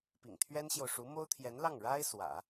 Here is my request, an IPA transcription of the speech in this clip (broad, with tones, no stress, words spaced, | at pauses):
pḭ˨˩ŋt̪ʰɥɛ˥nɕjo˨ʊ̯ ʂu˧˥mo˥ʊ̯t̪ʰjɛ˧˥nlɑ˥˩ŋ ɻa˥ɪ̯ swä̰˨˩˦